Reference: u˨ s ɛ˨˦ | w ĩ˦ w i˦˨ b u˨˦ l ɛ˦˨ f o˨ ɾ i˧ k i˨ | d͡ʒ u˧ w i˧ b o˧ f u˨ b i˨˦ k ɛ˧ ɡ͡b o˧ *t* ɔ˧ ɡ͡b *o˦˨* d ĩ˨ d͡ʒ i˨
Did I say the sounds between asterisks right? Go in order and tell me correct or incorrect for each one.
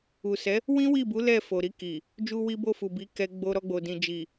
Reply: incorrect: ɾ, incorrect: o˨

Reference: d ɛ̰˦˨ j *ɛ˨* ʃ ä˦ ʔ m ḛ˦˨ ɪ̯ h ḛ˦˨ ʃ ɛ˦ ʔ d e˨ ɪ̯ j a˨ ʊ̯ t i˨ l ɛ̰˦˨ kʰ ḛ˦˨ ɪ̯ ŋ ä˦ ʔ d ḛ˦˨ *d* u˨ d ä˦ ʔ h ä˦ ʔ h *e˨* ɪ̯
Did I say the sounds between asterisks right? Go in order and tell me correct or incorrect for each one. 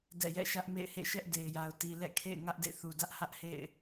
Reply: incorrect: ɛ̰˦˨, incorrect: θ, incorrect: ḛ˦˨

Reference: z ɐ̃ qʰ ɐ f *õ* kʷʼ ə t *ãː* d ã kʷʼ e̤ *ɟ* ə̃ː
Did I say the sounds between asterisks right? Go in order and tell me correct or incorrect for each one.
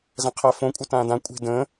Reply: correct, correct, incorrect: d

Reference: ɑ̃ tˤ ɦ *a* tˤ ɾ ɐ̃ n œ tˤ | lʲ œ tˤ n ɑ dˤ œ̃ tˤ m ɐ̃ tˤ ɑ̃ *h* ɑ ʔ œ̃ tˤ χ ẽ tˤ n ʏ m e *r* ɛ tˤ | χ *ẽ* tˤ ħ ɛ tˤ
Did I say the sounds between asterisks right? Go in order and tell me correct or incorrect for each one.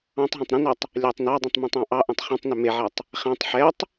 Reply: incorrect: ã, incorrect: ʔ, incorrect: ʕ, incorrect: ɛ̃

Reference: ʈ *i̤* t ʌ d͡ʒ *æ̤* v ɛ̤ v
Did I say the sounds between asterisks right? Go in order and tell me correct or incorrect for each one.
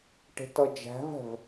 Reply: incorrect: e̤, correct

